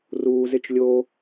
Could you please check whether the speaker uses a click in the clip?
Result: no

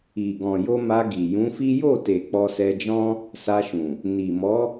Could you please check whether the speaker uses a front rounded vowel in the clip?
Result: no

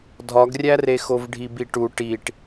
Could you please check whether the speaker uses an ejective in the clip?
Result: no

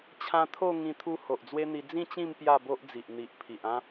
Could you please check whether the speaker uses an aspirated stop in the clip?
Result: yes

